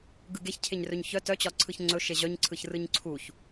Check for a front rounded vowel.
present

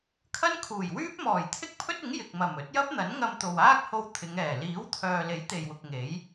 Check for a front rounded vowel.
present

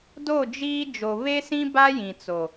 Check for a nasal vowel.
present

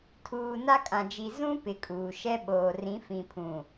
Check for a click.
absent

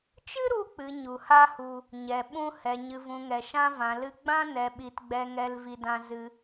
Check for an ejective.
absent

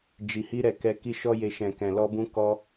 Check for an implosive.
absent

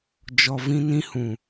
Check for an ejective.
absent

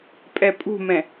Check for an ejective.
present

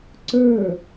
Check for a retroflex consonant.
absent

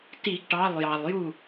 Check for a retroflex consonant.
present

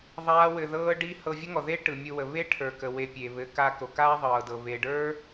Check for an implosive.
absent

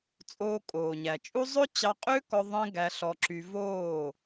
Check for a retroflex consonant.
absent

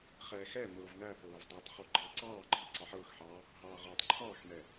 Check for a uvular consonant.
present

